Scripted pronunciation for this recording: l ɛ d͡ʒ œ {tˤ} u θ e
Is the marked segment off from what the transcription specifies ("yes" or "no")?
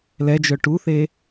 yes